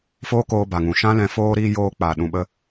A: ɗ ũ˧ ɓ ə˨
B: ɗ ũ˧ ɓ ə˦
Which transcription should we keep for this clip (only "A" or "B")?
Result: B